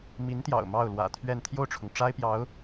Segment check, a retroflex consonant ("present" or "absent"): present